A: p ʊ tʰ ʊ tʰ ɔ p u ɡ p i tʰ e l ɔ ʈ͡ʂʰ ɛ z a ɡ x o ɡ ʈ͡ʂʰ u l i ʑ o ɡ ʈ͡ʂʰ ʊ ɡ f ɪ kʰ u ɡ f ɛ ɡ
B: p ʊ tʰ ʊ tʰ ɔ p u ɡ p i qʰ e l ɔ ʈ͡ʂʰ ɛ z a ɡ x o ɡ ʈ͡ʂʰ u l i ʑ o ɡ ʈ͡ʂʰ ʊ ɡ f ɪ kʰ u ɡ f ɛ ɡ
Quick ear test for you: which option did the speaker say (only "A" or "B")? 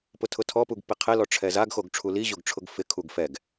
B